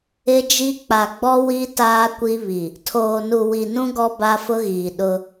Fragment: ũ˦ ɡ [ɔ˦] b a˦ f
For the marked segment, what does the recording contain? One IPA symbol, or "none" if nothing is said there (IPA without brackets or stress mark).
ɔ˦